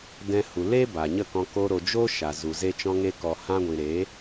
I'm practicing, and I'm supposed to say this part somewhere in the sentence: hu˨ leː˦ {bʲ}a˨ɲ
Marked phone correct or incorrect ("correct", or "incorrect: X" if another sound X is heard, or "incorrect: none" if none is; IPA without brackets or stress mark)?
incorrect: b